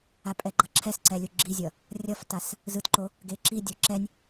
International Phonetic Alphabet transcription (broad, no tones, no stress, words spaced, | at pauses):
apʼɛɡ͡ǃʌǁʰɛs ǀɛlʲuɡ͡ǁizʲʌ | rʲʌftas | zɯtǃo | ɡeǁidʲo ǁɛnʲ